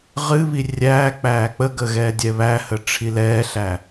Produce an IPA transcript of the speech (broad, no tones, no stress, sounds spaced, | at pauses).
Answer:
ʁ ɨ β i rʲ æː k͡p æː k͡p ə ɡ ə ɣ ɛː dʲ ɛ β æ h ə ʈ͡ʂʰ i l ɛː ɬ æ